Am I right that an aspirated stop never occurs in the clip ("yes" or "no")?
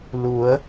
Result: yes